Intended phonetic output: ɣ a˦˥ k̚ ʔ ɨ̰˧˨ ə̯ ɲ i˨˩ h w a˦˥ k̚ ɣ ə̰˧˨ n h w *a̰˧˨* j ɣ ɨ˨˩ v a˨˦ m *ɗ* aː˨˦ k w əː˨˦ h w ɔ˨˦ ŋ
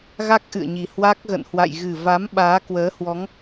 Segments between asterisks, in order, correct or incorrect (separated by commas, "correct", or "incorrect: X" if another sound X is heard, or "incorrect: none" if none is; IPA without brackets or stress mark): correct, incorrect: ɓ